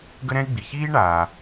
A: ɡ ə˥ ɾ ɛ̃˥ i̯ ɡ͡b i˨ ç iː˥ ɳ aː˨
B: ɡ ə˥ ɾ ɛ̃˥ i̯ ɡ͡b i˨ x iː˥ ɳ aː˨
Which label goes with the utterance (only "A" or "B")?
A